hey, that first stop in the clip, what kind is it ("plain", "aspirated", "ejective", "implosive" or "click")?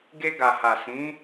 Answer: plain